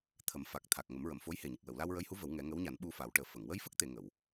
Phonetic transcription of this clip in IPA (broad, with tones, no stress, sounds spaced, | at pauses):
t̪ʰ ə˨˩˦ m f a˨˩ k̚ t̪ʰ a˨˩ k̚ ŋ ə˨˩˦ m ɹ ə˨˩˨ m f o˧˥ j h e˨˩ ɲ e˨˩ k̚ w ə˨˩˨ w l a˧ w ɹ ə˧˥ j h u˧˥ v ə˨˩˦ w ŋ ɛ˨˩˦ ŋ əː˧˥ w ɲ a˨˩˦ n ɓ u˧ f a˨˩˦ w ʈ əː˨˩ f ə˨˩˨ ŋ w ə˧ j f ə˦˥ k̚ t̪ e˨˩˨ ŋ ə˨˩˨ w